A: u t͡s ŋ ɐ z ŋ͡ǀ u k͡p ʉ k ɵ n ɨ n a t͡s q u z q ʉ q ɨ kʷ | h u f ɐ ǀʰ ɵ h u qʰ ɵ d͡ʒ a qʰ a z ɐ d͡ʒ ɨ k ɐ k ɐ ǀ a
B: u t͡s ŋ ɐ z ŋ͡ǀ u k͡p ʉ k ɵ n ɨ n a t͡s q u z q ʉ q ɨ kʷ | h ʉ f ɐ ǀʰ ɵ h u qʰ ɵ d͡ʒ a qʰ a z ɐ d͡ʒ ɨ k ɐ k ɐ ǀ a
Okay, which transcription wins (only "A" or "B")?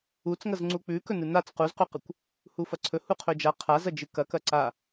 A